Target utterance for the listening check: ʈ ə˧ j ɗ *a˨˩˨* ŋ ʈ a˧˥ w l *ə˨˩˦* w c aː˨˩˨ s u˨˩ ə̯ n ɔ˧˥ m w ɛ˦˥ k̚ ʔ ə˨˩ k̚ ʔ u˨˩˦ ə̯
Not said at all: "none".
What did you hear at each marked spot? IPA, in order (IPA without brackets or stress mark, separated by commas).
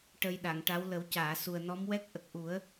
a˨˩˨, ə˨˩˦